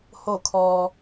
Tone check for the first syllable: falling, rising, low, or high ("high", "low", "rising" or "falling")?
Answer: falling